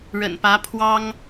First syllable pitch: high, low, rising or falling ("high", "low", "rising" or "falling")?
low